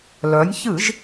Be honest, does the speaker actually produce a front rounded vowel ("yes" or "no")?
yes